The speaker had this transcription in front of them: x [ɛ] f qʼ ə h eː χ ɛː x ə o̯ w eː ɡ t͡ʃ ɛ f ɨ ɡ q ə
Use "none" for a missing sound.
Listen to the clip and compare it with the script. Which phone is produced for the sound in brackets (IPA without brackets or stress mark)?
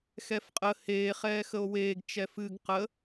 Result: ɛ